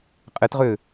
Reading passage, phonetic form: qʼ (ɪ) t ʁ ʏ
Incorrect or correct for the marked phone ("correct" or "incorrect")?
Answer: correct